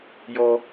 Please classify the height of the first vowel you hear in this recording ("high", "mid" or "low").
mid